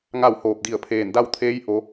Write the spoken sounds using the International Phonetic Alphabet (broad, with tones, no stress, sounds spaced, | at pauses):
ŋ a˥˨ w h oː˧˩ p̚ d i˧˩ ə̯ pʰ eː˧˩ n d a˥˨ w t̪ʰ eː˧˥ j ʔ o˩˧